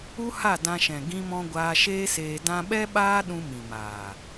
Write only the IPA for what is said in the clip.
u˦ha˦˨ dã˧ʃɛ̃˨ ɡĩ˧mɔ̃˧ ɡʷaː˧ʃeː˦seː˧dã˦ ɓɛ˦ɓaː˦ ɗũ˧mĩ˨maː˨

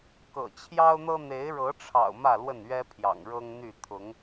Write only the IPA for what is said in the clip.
kɤ̰˨˩t͡ɕʰjɑ˦ʊ̯n̪ɤ˦ n̪e˨˦ɪ̯ɻɤ˨˦ʈ͡ʂʰɑ̰˨˩ʊ̯ mä˥˨lwə˥˨nɥɛ˦pʰjɑ̰˨˩ŋ ɻɤ˦ŋn̪y˥˨ t̪ʰʊ˨˦ŋ

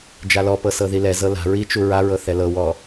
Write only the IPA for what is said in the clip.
d͡ʒalɔpɤ sɤðilɛzɤ la̤ ɹit͡ʃu ɹaɹɤ θɛlɤwɔ

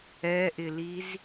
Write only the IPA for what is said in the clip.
ɛʔɪliz

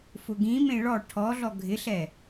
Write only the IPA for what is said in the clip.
fʊɡĩmẽ ɭɔ ʈʰɔɮɔ ɡʱɪɬɛ

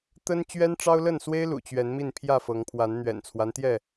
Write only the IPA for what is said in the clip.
t̪ə˦n t͡ɕɥɛ˦nʈ͡ʂɑ˦ʊ̯lə˥˨nswe˦ɪ̯ lṵ˨˩t͡ɕɥɛ˨˦n mi˥˨npʰjä˥˨fɤ˨˦ŋpʰwa˨˦n n̪ɥɛ̰˨˩nt͡sʰwa˦nt̪jɛ˥˨

